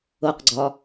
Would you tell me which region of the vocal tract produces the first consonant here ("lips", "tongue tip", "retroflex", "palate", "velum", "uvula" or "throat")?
uvula